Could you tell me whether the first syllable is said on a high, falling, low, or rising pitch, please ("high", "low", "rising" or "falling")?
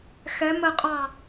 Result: rising